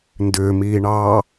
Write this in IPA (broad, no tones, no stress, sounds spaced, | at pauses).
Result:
n d ʏː m iː ɳ ɑː